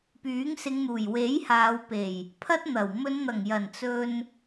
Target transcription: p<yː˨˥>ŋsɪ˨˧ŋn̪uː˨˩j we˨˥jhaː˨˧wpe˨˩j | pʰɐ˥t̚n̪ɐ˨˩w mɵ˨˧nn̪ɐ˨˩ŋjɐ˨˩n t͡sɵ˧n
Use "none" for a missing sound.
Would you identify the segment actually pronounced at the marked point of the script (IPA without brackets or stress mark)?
yː˨˥